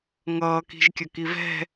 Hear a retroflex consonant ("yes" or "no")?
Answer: no